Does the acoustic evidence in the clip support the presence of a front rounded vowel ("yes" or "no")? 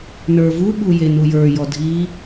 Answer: no